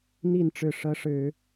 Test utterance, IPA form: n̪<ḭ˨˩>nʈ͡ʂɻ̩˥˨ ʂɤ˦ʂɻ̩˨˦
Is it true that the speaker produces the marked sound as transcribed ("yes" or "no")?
no